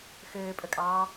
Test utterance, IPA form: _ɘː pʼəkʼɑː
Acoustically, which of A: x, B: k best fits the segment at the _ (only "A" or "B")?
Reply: A